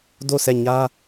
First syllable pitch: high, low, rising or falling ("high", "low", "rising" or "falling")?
falling